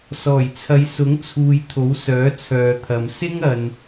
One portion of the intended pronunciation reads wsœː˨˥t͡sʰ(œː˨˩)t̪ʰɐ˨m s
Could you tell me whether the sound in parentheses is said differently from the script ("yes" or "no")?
yes